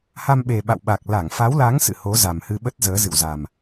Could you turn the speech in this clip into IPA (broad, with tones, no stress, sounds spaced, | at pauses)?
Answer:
h a˧ m ɓ e˨˩ ɓ a̰˧˨ w ɓ a˨˩ k̚ l a˧˩ ŋ f a˨˦ w l a˨˦ ŋ s ɨ̰˧˨ h o˨˦ z a˨˩ m h ɨ˧ ɓ ə˦˥ t̚ z əː˨˦ z ɨ̰˧˨ w z a˨˩ m